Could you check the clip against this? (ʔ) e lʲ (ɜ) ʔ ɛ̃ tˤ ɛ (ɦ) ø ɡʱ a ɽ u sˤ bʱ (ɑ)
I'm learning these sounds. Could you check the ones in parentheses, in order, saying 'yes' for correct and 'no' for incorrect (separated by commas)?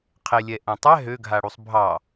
no, no, yes, yes